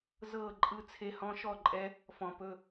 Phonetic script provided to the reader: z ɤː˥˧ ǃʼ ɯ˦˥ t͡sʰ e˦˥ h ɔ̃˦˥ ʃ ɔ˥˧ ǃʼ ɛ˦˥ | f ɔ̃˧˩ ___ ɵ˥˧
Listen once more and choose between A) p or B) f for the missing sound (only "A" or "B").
A